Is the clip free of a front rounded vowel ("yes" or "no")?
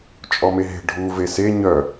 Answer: no